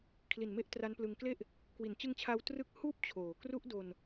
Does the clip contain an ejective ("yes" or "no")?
no